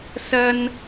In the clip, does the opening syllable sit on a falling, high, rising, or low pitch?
high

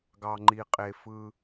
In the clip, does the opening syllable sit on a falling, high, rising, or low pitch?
low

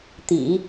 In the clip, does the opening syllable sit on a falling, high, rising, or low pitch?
low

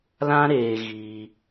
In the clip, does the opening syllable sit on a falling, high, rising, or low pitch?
high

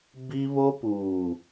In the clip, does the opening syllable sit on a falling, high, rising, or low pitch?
high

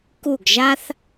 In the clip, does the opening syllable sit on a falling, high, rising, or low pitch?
falling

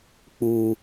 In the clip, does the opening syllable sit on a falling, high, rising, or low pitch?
low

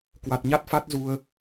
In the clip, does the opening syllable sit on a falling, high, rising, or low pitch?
low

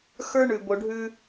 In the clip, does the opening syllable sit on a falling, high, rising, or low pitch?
high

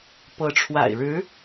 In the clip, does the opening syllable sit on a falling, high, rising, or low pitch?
rising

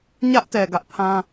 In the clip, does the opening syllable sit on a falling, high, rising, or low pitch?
high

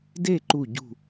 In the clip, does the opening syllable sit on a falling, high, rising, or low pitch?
falling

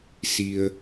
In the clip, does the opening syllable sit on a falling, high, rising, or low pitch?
low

